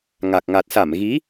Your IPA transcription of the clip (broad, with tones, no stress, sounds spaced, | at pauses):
ŋ a˨˩ k̚ ŋ a˨˩ t̚ s a˧˩ m ɣ i˨˦